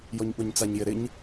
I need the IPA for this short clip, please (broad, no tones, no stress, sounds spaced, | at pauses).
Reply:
j ɔ ɲ ɠ o ɲ t͡s a ɲ j ɪ ɾ ɪ ɲ